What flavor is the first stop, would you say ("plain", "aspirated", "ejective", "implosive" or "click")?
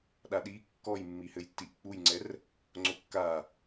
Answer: implosive